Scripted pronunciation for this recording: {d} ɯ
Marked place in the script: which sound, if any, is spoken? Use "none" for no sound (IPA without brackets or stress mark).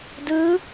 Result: d